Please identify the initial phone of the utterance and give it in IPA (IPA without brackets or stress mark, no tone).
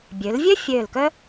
bʲ